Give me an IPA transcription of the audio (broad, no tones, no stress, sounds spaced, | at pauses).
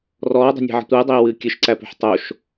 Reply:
r ɔː dˤ o̤ nʲ æ̤ ʕ ə̤ tʷ ɨː dˤ eː w ɨː kʲ ɨ ʃ ǀ æ p o̤ ħ tˤ o ʃ